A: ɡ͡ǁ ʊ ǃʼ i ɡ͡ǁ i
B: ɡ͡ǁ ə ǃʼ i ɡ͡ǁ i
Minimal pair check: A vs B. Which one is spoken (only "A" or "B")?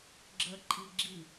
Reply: B